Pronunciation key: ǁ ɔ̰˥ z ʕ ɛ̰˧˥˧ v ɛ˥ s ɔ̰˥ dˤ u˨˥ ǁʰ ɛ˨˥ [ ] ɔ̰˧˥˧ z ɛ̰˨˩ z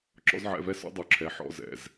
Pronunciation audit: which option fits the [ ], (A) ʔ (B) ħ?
B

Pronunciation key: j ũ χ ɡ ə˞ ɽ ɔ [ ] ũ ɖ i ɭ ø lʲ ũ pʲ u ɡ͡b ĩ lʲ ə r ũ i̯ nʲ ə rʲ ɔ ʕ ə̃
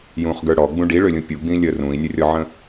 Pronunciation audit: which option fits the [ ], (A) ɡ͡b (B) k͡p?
A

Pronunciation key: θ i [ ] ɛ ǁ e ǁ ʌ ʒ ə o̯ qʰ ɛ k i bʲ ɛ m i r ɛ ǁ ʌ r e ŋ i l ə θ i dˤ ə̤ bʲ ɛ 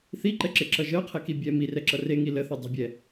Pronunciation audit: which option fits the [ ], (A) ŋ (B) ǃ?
B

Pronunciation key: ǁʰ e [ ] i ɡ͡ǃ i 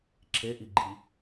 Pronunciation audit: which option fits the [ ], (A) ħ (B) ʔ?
B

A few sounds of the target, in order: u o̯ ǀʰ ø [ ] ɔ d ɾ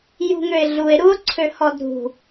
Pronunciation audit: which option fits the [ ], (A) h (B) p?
A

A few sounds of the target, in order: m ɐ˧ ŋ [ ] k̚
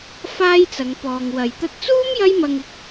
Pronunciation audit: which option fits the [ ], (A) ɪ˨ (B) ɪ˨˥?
A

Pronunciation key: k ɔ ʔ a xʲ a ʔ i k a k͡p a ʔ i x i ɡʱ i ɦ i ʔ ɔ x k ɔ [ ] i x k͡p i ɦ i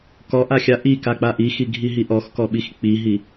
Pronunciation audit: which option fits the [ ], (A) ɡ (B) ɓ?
B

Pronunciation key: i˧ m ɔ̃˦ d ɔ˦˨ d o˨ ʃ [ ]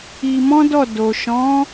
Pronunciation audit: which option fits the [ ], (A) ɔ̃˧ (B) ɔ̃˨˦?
B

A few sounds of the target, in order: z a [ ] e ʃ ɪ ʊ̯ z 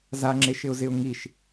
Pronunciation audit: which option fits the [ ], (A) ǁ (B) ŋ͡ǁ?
B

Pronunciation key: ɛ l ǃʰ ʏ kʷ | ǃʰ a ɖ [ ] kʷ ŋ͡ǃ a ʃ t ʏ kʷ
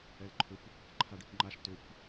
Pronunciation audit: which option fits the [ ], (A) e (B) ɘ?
A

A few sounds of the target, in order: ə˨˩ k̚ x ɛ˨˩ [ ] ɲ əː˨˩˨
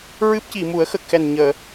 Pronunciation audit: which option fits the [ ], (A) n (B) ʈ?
A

